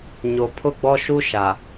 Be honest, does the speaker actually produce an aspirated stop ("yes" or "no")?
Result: yes